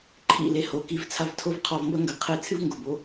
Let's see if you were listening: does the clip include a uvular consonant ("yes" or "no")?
yes